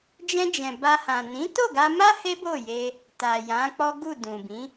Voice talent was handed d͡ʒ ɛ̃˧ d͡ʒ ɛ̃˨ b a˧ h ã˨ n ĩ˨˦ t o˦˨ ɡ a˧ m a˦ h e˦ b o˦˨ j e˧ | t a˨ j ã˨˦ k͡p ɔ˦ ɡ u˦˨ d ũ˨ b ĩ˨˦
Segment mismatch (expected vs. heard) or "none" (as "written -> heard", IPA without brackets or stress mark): none